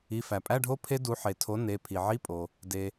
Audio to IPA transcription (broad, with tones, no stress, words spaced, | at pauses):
i˩˧˩fæ˩pʼæ˧˥˧ɖʱo˦˥ pʰe˦˥du˩˥ ħe˩tʰo˩˥ ne˩˧˩ pʰi˩ʕi˧˥˧ pʼo˩ | de˩